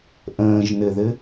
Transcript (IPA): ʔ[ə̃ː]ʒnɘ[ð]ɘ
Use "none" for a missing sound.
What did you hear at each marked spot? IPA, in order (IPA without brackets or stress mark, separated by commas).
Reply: ə̃ː, ð